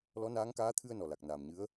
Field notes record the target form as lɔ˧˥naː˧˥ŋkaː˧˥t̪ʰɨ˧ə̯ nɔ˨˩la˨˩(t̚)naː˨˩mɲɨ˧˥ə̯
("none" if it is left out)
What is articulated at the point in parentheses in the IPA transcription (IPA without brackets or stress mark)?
k̚